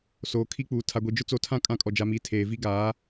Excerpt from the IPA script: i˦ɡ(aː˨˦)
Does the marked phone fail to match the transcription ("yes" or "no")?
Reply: no